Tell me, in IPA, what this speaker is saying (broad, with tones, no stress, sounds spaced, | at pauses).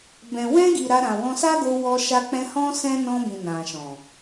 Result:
b ɛ̃˨ w ɛ̃˧ ɡ i˨ ɾ a˧ ɾ ã˨ w ɔ̃˧ s a˦ ɡ o˧ w ɔ˧ ʃ a˧ k͡p ɛ̃˧ h ɔ̃˦ s ɛ̃˦ n ɔ̃˧ b ĩ˨ n ã˨ ʃ ɔ̃˨